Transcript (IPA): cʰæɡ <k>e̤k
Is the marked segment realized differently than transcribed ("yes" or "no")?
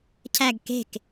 no